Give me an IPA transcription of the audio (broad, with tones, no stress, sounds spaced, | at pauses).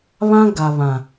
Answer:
β ã˦ ɡ a˨ β ã˨